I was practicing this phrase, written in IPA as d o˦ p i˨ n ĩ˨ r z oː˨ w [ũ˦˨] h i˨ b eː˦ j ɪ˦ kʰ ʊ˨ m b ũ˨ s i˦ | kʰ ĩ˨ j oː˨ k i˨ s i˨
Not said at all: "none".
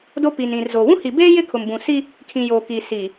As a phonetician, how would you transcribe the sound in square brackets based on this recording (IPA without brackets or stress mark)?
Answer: ũ˦